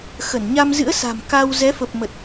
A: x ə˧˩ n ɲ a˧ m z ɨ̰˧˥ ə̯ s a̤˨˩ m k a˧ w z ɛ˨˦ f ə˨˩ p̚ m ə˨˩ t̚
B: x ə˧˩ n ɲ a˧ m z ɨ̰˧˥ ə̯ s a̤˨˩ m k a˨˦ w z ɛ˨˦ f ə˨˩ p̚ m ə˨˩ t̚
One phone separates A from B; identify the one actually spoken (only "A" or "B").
A